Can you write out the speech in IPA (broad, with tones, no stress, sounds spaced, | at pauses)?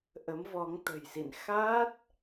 ʔ ə˨˦ m v ɔ˨˦ ŋ t̪ ə̤˨˩ j s ḭ˧˨ n x a˦˥ t̚